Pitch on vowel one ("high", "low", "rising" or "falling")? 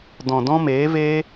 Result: low